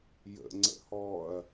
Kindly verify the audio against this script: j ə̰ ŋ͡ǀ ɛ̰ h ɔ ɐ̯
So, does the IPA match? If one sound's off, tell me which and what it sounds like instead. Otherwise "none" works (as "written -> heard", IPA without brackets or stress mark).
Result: ɛ̰ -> ə̰